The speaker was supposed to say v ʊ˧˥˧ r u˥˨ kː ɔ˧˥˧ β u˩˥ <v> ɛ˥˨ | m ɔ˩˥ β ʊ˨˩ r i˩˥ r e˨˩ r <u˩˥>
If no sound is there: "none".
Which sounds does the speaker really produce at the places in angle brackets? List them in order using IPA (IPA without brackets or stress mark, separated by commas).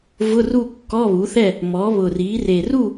θ, u˥˨